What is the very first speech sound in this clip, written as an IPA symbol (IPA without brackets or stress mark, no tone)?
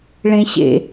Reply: ɭ